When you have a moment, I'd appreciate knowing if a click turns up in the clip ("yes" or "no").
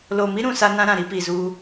no